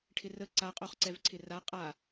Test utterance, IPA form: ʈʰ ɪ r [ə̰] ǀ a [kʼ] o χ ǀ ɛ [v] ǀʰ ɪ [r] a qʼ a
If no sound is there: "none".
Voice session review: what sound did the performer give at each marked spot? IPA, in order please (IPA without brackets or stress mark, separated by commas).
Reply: ə, qʼ, v, r